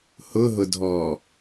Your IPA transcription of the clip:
h ʊ ɦ ʊ dʱ ɔː

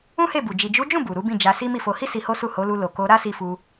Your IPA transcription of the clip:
ũ˦ h e˦˨ b u˨ d͡ʒ i˨ d͡ʒ u˨˦ d͡ʒ ũ˦˨ b u˨ ɾ u˨˦ b ĩ˦˨ d͡ʒ a˧ s i˦ m i˦˨ f o˧ h i˦ s i˧ h o˦ s u˦˨ h o˨˦ l u˧ l o˨ k o˧ ɾ a˦ s i˧ f u˧

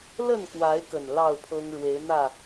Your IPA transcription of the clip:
l ə˥˨ n k w a˨˦ ɪ̯ k ə˨˩ n l ɑ˥˨ ʊ̯ pʰ ɤ˦ ŋ ɻ w e˨˦ ɪ̯ n̪ ä˥˨

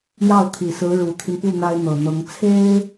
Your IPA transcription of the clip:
j ɑ˥˩ ʊ̯ t̪ʰ i˨˩ s ɹ̩˧˥ ɻ u˨˩ t̪ʰ i˦ n p u˥˩ n̪ a˥ ɪ̯ n̪ ɤ˨˩ n̪ ɤ˧˥ ŋ t͡sʰ e˥ ɪ̯

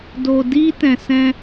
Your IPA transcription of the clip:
d o˧ d i˦ t ɛ̃˧ s ɛ̃˦

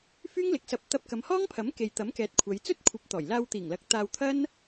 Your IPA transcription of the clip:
f yː˥ ŋ l ɪ˨ k̚ s ɐ˧ p̚ t̪ ɐ˧ p̚ k ɐ˨˧ m h ɔː˥ ŋ pʰ ɐ˨˥ m k e˨ j t̪ ɐ˨˥ m k ɛː˨˥ t̚ kʷʰ ɐ˨˧ j t͡s ɵ˥ t̚ kʷʰ ɐ˨˥ p̚ t̪ ɔː˨˩ j l aː˧ w t̪ iː˨˩ ŋ l ɐ˨˥ k̚ t̪ aː˧ w t̪ʰ ɐ˥ n

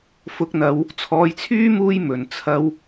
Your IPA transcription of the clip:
f ʊ˨˥ k̚ n̪ ɐ˨˧ w | t͡sʰ ɔː˨ j t͡sʰ yː˥ m uː˧ j m ɵ˨˩ n t͡sʰ ɐ˧ w

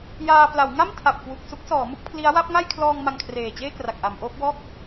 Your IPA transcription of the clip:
j aː˧ p l a˩˦ w ŋ a˥˩ m tʰ a˨˩ p̚ k w u˨˩ k̚ s u˦˥ k̚ s ɔː˩˦ m u˥˩ k̚ pʰ l i˦˥ a̯ w a˥˩ p̚ ŋ a˥˩ j kʰ l ɔː˧ ŋ m a˧ ŋ kʰ r eː˨˩ t͡ɕ eː˥˩ k r a˨˩ k̚ ʔ a˩˦ m ʔ oː˦˥ p̚ w ɔː˥˩ k̚

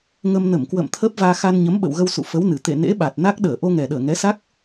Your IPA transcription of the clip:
ŋ ə˧ m n ə˧˩ m k w ə̰ː˧˨ m t̪ʰ əː˦˥ p̚ v aː˧ x a˧ n ɲ ə˨˦ m ɓ ə̰˧˨ w ɣ ə˧ w s ṵ˧˨ f ə˨˦ w n ɨ˨˩ t̪ ḛ˧˨ n ḛ˧˥ ɓ a˨˩ t̚ n a˦˥ k̚ ɗ əː˧˩ ʔ o˧ ŋ ɛ˨˩ ɗ əː˧˩ ŋ ɛ˨˦ s a˦˥ k̚

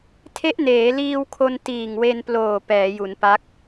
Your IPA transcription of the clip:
tʰ e˦˥ ʔ n eː˩˦ l iː˧ w kʰ o˧ n t iː˨˩ ŋ w e˧ n p l oː˨˩ p ɛː˩˦ j u˩˦ n p a˦˥ k̚

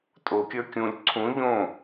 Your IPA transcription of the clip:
tʼ o kʲ ə˞ kʲ ũ lʲ ǀʰ ũ ʎ õ

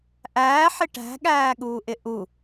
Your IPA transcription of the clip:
ʔ æː ħ ɪ ʈ æ̤ ɠ æː ɠ uː ʔ ɪ ʔ u

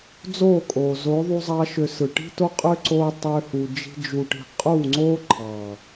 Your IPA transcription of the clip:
d͡z oː˦˨ kʼ oː˨ z o˨˦ ðˤ u˧ zˤ ɑ˧ ʃ ø˨ s ɯ˨ ʈ i̤˦ t o˦ qʼ ø˦ ǀ oː˧ tˤ øː˧ h u˨ d͡ʒ i̤˧ d͡ʒ u˨ ʈ i̤˨ qʼ uː˦˨ ŋ͡ǀ oː˦ ǃʰ ɑ˨

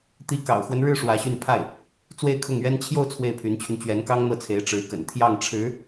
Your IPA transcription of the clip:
t̪ i˧˥ k ɑ̰˨˩ ʊ̯ x w ə˦ n ɻ ɻ̩˥˩ ʂ w ä˧˥ ɕ y˥˧ n pʰ a˥˩ ɪ̯ | t͡s w e˥˧ ɪ̯ kʰ ʊ˥˩ ŋ ɥ ɛ˥ n t͡ɕʰ j o˥˧ ʊ̯ t͡sʰ w e˥˩ ɪ̯ pʰ y˧˥ n t͡ɕʰ y˧ n t͡ɕ ɥ ɛ˧˥ n k ɑ˥ ŋ n̪ ɤ˥˩ t͡sʰ e˧˥ ɪ̯ ʈ͡ʂ ɻ̩˧˥ k ə̰˨˩ n t̪ʰ j ɑ˥˩ ŋ ʈ͡ʂʰ ɻ̩˧˥

